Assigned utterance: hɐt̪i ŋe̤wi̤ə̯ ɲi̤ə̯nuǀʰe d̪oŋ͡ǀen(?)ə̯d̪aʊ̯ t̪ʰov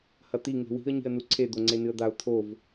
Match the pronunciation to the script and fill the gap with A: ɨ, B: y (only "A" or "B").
A